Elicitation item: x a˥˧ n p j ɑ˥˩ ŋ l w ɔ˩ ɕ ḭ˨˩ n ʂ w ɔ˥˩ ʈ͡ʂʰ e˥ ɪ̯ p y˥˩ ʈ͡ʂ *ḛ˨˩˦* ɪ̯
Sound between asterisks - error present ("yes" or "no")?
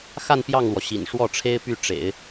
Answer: no